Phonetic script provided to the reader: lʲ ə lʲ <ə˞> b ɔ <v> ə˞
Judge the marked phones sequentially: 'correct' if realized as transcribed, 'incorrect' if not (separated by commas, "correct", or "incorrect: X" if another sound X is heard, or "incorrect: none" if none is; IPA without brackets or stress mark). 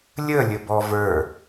incorrect: ə, correct